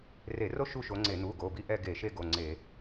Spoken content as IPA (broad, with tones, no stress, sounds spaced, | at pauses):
r e˧˩˧ r o˥ ʃ u˥˧ ʃ o˨˦ ŋ͡ǀ e˧˩˧ n̪ u˩˧˩ ɡ o˩˧˩ b i˥ ʔ ɛ˥˧ ɡ e˧˩˧ ʃ e˥˧ ɡ o˩˧˩ ŋ͡ǀ e˧˩˧